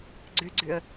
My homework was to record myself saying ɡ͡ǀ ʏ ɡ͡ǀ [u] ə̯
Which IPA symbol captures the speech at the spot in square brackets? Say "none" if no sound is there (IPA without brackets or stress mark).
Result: ʏ